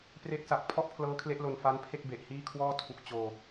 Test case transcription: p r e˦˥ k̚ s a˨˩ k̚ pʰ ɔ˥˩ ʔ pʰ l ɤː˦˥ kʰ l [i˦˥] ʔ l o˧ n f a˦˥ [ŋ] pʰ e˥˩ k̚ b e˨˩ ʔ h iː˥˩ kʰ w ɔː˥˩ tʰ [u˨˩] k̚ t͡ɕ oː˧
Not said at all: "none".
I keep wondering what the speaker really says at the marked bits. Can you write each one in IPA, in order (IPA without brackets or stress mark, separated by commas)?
e˦˥, n, u˨˩